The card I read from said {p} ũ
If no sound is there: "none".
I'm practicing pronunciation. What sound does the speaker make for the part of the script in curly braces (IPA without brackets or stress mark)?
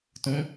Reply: t